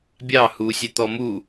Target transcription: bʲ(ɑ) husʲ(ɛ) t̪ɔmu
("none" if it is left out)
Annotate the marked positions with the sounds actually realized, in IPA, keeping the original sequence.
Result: ɑ, ɛ

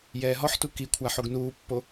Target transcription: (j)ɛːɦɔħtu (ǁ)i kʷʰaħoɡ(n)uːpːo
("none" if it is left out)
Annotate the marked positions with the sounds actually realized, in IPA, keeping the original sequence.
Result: j, k, n

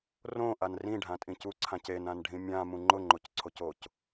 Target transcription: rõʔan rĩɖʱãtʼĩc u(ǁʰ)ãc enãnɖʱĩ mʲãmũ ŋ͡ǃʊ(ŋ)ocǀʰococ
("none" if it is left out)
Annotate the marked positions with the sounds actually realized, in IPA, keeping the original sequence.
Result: ǀʰ, ŋ͡ǃ

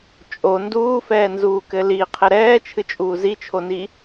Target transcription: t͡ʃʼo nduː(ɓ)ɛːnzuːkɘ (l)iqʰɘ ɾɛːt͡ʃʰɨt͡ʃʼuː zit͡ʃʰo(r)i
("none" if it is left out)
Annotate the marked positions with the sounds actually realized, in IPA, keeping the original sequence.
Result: f, l, n

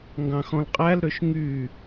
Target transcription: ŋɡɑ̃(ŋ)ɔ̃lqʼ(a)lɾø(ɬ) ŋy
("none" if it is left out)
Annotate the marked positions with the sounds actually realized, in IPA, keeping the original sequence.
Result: x, æ, ʃ

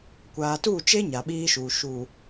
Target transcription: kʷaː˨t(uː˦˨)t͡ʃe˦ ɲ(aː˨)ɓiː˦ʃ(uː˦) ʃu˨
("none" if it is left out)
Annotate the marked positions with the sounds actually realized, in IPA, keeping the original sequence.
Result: uː˦˨, a˨, uː˨

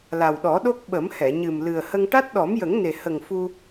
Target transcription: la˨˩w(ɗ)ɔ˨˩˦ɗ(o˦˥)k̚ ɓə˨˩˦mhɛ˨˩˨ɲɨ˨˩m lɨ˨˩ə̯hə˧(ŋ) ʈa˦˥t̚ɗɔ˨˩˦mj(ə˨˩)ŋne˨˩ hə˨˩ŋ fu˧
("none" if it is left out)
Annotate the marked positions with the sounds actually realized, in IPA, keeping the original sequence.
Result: ɗ, o˦˥, ŋ, ə˨˩˦

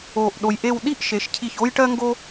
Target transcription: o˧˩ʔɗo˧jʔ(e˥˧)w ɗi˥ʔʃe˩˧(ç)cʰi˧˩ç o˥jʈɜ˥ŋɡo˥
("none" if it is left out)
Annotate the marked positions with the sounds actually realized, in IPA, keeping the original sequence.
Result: e˥˧, ʃ

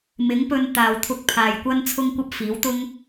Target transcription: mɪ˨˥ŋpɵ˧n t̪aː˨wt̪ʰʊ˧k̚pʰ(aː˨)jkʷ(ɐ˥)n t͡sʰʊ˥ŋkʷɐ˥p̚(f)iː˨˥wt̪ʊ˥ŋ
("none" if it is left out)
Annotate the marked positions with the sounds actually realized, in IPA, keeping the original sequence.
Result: aː˨, ɐ˥, f

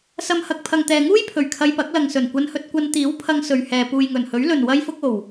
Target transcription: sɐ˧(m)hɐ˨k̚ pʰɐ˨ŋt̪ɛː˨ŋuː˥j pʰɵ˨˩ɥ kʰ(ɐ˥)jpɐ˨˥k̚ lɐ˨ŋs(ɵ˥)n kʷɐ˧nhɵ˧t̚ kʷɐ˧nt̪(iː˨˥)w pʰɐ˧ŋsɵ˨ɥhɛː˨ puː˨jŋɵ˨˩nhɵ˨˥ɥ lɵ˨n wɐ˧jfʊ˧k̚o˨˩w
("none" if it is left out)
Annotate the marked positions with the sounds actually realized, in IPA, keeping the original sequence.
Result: m, ɐ˧, ɵ˨˩, iː˨˥

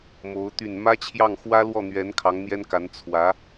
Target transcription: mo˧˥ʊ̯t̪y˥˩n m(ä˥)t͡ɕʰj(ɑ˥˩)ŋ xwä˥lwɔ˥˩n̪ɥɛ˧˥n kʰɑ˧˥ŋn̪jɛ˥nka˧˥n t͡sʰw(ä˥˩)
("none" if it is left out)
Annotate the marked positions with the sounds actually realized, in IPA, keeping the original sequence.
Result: ä˥, ɑ˥˩, ä˧˥

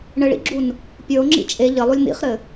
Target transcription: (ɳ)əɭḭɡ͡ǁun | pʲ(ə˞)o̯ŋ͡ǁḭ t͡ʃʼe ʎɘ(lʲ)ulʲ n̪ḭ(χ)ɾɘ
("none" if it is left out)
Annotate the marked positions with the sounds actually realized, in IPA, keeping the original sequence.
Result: ɳ, ə˞, lˠ, χ

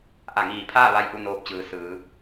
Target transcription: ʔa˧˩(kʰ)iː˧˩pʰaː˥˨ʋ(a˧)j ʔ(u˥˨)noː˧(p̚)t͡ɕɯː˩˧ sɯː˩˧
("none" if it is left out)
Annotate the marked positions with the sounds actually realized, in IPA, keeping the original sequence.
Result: ŋ, a˧, u˥˨, p̚

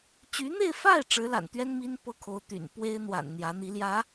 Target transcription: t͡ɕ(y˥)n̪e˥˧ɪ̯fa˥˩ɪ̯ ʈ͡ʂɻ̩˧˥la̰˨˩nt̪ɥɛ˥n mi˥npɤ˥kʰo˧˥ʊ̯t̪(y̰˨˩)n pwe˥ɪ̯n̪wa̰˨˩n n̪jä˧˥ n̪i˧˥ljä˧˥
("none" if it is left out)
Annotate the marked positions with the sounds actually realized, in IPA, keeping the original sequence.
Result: y˧˥, y̰˨˩

